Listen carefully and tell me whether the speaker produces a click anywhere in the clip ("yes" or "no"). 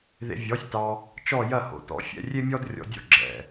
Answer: yes